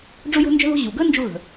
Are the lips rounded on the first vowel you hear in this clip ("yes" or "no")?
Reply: yes